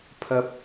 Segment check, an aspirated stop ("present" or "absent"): present